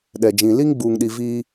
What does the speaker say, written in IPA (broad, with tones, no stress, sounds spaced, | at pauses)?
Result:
ɗ ɛ˨ d͡ʒ ĩ˨ l i˦ ŋ ɡ͡b uː˨ ŋ ɗ i˨ v iː˦